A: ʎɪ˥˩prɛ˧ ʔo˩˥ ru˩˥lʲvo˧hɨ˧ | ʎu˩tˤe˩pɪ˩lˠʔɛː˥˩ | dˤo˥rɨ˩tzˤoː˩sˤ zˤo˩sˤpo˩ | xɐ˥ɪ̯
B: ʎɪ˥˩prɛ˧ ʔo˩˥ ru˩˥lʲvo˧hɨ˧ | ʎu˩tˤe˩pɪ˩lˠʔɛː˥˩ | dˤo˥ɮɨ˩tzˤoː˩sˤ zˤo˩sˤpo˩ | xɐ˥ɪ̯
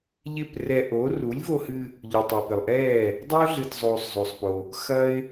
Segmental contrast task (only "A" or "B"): B